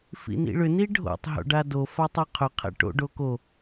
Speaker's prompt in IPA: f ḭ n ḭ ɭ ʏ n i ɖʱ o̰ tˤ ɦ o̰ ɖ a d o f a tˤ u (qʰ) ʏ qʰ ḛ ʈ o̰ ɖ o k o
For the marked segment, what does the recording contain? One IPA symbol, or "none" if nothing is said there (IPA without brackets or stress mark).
qʰ